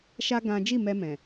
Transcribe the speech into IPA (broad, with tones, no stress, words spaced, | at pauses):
ʃa˦ ɡã˦ d͡ʒi˦˨mɛ˧ mɛ̃˨